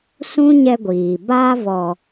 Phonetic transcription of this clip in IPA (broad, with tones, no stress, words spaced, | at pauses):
sũ˦ɲɛ˧ɡʷiː˨ ba˧vɔ˨